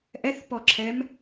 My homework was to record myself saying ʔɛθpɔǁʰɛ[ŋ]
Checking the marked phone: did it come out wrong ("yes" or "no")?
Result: yes